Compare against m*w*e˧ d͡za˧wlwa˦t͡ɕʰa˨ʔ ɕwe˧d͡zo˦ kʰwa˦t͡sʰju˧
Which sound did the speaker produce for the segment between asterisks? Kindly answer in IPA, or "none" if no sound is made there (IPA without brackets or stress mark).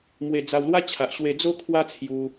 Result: w